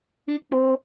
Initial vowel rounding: unrounded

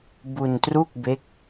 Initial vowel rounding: rounded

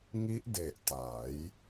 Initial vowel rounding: unrounded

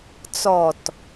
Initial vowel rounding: rounded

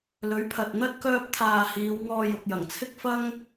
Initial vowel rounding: rounded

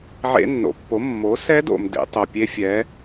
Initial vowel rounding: unrounded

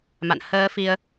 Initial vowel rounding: unrounded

